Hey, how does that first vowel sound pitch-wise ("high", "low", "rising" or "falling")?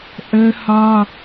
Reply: high